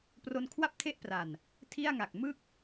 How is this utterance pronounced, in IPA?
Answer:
pro˧nkʰwa˥˩p̚tʰe˥˩ʔpra˨˩n | tʰi˥˩a̯ŋa˨˩k̚ mɯ˦˥k̚

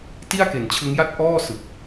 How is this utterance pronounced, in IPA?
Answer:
ti˥˩a̯ke˩˦nt͡ɕʰɯ˦˥ŋja˥˩t̚ ʔɔː˥˩sɯ˨˩k̚

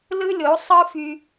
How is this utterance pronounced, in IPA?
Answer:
lɯ˦lʲo˨˦ sˤɯ˦fy˧

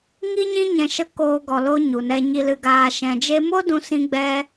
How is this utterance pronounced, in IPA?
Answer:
ŋi˦ɲĩ˦ɲɛ̃˧ ʃə˧ koː˧ɡɔ˨lo˧ ɲu˨nɛ˧ ɲi˨lɨ˨ɡaː˨ ʃɛ̃˨d͡ʒe˧mo˦ dũ˧sĩ˧ɡ͡bɛ˧

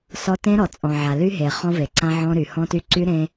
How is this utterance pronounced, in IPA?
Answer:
sɔ˦ tẽ˦ɾɔ˨ t͡sʼɔ̃˨ʕa˨ ly˦ɦe˨ χɔ̃˦ve˨ǀã˦ ʕɔ̃˦ɾy˨ hɔ̃˦ty˦ ǀy˦ ɾẽ˦

